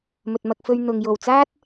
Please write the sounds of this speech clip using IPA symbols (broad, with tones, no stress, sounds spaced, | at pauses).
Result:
m ɵ˨ t̚ m ɐ˧ k̚ f ɵ˧ ɥ n̪ ʊ˨ ŋ j o˨˩ w t͡s aː˥ t̚